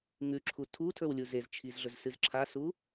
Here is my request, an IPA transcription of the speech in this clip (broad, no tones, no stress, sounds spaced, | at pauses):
ŋ ʉ ǁʰ u tʰ u tʰ ɵ w lʲ u z e z t͡ʃʰ i z ɮ ɵ z s ɨ z ǁʰ a s u